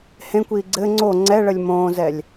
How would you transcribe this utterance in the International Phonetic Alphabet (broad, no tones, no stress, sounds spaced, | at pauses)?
h ẽ kʷ iː ɡ͡ǀ ɘ ŋ͡ǀ o ŋ͡ǀ ɛ ɭ ə lʲ m õː z ɛ lʲ